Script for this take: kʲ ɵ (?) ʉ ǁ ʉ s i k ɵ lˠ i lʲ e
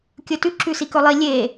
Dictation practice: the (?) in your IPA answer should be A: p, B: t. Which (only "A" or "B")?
B